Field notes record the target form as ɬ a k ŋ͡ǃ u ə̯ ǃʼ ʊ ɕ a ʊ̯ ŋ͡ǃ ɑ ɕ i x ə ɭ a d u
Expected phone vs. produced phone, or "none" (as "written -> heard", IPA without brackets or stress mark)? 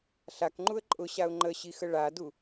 ɑ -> ə